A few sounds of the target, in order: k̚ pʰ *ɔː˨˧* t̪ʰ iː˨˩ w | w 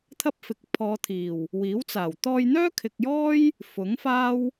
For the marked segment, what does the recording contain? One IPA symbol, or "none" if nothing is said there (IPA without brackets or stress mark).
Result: ɔː˨˧